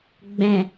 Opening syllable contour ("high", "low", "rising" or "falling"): low